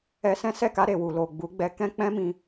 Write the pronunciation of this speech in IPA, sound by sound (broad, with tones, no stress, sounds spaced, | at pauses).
ɛ˧ s ɛ̃˦ s ɛ˦˨ k a˧ ɾ e˨ w u˨ l o˨ ɡ͡b u˨˦ ɡ͡b ɛ˧ k ɛ̃˦ k͡p ɛ̃˦ m ĩ˧